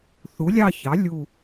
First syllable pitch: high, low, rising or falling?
rising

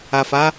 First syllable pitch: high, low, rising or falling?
low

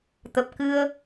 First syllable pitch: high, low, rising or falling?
low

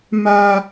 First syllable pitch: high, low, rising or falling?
high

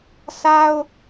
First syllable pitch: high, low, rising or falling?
high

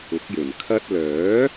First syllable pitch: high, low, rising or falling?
rising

